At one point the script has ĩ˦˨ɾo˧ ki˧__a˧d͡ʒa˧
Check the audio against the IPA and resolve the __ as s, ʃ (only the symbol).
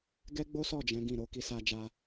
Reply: s